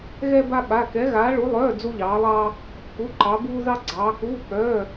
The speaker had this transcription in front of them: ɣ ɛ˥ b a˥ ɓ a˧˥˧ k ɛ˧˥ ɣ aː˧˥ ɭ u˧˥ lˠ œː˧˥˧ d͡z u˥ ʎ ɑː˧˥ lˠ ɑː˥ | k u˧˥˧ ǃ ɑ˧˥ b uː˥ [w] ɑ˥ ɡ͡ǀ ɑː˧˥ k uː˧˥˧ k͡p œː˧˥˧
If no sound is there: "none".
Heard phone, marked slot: ð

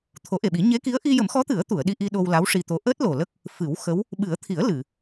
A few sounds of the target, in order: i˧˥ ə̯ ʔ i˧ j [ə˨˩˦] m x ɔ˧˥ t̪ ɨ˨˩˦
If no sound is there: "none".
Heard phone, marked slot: ə˨˩˦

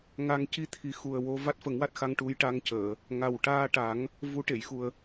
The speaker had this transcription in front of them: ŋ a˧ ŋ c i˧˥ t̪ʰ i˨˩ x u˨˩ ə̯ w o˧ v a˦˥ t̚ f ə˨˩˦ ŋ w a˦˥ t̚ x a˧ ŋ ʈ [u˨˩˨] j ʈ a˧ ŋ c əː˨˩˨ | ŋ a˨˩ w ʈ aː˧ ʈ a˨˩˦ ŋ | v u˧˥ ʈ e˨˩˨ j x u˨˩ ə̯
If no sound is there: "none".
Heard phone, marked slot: u˧˥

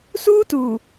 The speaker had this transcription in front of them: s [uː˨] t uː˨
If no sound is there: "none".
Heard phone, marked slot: uː˦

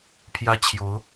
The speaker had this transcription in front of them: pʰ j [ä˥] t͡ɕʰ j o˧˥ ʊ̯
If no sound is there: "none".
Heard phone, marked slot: ä˥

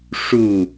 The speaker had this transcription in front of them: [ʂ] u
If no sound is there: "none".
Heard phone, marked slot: ʂ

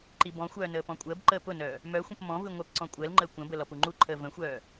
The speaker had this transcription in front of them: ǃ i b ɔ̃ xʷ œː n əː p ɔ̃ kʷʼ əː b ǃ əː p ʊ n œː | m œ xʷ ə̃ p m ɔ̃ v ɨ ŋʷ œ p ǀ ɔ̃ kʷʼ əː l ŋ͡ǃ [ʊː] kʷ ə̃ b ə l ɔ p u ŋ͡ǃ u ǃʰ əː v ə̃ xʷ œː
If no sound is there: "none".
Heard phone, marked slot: əː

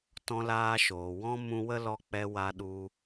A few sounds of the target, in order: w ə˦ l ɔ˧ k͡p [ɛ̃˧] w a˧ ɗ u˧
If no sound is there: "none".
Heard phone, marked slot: ɛ˧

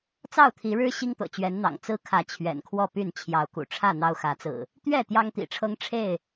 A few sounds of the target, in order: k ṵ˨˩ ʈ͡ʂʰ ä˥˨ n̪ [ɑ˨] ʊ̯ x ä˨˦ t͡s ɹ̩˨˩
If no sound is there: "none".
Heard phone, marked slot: ɑ˦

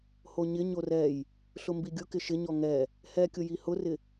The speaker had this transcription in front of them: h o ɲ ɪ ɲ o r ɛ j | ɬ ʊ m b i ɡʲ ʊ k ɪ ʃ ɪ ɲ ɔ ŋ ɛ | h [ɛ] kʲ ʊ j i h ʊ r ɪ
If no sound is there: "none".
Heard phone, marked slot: ɛ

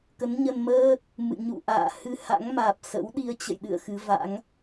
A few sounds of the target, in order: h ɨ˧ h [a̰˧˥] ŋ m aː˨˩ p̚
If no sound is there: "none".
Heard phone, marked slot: a̰˧˥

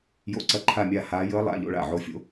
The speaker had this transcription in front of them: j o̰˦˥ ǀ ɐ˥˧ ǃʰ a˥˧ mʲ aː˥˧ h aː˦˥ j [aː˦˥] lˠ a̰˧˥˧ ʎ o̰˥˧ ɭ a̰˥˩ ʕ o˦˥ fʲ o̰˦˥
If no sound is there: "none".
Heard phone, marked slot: əː˦˥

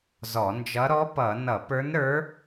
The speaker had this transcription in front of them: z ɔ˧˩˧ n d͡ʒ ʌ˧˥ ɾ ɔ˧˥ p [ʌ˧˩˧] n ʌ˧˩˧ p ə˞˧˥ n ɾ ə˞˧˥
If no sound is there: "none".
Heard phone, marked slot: ʌ˧˩˧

